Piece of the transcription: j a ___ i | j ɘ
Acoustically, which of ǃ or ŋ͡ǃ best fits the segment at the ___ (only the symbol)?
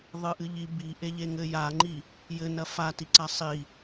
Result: ŋ͡ǃ